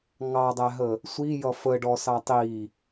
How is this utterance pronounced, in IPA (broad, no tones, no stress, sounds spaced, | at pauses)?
ŋ ɑ dˤ æ ɦ ə | sʷ i j ʌ f ə ɖ ɔ s ɑ tˤ i